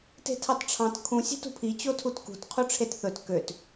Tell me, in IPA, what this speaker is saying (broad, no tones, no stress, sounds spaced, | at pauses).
t e̤ tʰ ɑ t ʈ͡ʂʰ ɑ̃ t kʰ ũ sʲ e̤ t ṳ pʰ i t͡ɕ o tʰ u t k ṳ t qʰ u ʈ͡ʂʰ e t θ ɵ t k ø t